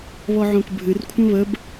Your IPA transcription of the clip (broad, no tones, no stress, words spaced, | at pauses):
βɔʕõkbʱɨr kʷʰə̃βəb